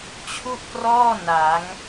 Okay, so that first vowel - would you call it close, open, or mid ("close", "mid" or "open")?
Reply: close